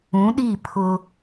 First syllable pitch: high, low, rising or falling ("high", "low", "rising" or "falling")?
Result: rising